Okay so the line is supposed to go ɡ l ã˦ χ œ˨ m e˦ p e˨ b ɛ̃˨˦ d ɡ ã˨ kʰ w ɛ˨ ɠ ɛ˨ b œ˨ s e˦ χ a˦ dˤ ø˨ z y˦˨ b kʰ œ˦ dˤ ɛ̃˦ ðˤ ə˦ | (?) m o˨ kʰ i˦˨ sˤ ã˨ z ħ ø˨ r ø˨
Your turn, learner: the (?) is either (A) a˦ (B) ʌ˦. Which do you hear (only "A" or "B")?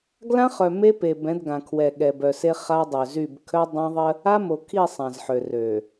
A